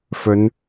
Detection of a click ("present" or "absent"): absent